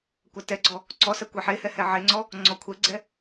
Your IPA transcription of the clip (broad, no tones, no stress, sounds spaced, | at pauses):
kʷ a t ɛ ɡ͡ǀ ɔ | ǀ ɔ s ɜ kʷ ɛ ħ e h ɛ h ɛ ʕ e ŋ͡ǀ ɔ | ŋ͡ǀ ɔ kʷʰ ɛ ɡ͡ǀ ɛ